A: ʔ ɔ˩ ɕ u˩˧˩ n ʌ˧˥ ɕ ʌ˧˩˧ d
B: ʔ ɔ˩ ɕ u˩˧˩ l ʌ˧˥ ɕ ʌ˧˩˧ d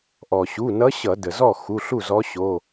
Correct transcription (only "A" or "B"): A